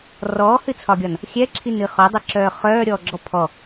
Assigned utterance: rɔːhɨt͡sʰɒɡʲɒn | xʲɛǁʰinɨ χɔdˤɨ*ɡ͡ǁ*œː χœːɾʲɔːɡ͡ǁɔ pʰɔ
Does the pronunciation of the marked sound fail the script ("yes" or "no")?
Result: yes